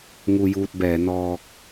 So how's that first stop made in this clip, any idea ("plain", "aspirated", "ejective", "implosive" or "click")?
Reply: plain